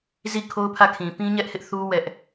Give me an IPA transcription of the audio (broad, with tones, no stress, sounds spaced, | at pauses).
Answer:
z i˦˨ kʰ o˦ ʊ̯ pʰ ä˦˨ kʰ ĩ˨ p ĩ˦ ɲ ɛ˦ ʔ h ɪ˦ ʔ θ u˦ w ɛ˦ ʔ